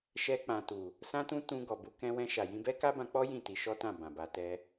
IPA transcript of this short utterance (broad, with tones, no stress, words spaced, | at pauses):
ʃɛ˧k͡pã˨tu˨ | sã˧tũ˧ tũ˧ɡɔ˨bu˧ kɛ̃˧wɛ̃˧ʃa˨ jĩ˧bɛ˦ka˦ bã˧k͡pɔ˦ jĩ˦˨ti˧ʃɔ˦tã˦˨ bã˨ba˧tɛ˦